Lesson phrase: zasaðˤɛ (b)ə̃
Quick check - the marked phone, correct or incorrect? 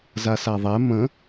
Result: incorrect